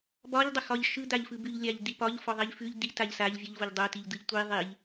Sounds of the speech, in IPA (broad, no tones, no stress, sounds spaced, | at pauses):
b ɒ ʎ dˤ ʊ x ɒ ʎ ʃ ɯ d̪ a ʎ f ɯ b ʉ ʎ lʲ a ʎ d̪ i p ɒ ʎ f ɔ ðˤ i ʎ f ʉ ʎ d̪ i t a ʎ s a ʎ vʲ ʊ ʎ v o ʎ dˤ o t i ʎ d̪ ɯ ʎ tʷ i ðˤ i ʎ